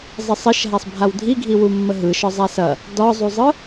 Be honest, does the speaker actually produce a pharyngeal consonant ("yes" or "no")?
no